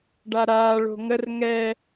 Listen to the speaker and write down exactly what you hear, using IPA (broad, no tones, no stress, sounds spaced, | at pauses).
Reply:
ɖ a ɾ aː ɭ o̤ ŋ ə r ŋ ɛ